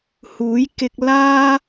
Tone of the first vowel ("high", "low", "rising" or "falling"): rising